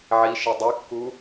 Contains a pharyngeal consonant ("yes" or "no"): yes